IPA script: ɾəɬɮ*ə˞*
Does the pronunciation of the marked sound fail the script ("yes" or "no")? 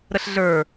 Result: no